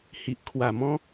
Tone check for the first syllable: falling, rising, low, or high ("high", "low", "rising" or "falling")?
low